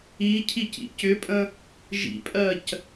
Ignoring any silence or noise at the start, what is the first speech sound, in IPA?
i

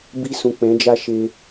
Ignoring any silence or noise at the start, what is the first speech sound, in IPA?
b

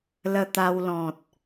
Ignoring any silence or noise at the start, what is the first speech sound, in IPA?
l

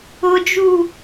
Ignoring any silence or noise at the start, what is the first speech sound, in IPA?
ʊ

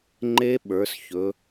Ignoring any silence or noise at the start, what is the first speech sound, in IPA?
ŋ͡ǃ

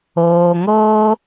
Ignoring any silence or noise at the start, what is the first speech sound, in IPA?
oː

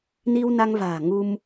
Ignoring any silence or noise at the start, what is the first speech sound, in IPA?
n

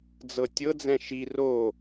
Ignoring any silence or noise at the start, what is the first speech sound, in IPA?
d͡z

